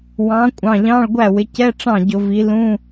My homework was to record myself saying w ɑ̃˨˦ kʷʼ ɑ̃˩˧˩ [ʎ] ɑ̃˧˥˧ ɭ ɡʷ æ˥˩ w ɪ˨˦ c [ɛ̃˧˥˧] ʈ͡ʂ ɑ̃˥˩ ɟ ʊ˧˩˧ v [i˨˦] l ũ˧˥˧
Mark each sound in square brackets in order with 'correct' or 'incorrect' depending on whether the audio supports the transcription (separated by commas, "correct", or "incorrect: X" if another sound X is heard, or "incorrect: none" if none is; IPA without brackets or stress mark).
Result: correct, incorrect: ɛ˧˥˧, correct